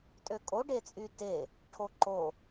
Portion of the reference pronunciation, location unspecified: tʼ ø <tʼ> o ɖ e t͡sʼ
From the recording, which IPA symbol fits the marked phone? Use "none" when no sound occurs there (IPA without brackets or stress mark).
kʼ